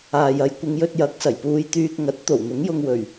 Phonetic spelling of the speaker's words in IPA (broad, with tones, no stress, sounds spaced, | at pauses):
aː˨ j ɐ˨˧ j kʷ ɪ˨˧ ŋ j ɵ˧ t̚ j ɐ˨˥ k̚ s ɐ˨˩ j p uː˧ j t̪ yː˧ k̚ ŋ ɐ˨˥ t̚ t̪ o˨˩ w n̪ ʊ˨˥ ŋ j ʊ˧ ŋ w ɵ˨˩ ɥ